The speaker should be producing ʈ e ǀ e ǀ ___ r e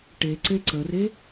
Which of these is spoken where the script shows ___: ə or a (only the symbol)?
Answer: ə